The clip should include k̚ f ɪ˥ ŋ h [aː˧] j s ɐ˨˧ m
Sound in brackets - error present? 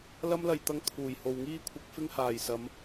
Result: yes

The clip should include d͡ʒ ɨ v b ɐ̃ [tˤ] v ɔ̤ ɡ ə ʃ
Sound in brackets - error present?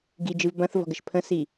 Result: yes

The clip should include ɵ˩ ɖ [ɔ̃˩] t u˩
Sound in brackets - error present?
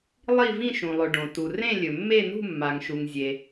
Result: yes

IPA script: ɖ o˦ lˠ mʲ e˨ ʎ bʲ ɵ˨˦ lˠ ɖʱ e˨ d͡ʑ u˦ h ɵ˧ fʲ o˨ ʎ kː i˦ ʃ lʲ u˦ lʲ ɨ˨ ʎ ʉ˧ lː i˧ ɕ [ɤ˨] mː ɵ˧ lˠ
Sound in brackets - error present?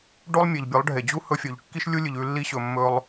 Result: yes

